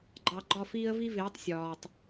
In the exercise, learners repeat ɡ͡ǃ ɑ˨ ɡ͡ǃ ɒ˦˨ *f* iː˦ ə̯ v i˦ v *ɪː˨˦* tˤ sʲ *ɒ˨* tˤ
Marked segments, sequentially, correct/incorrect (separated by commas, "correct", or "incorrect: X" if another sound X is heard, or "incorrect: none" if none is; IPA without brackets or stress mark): correct, correct, incorrect: ɒː˨